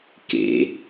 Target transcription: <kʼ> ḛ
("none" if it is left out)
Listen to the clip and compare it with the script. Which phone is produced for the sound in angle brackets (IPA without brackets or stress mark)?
k